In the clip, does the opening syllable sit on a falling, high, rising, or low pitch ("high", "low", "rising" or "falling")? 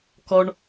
high